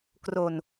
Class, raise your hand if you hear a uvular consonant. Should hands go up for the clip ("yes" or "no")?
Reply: no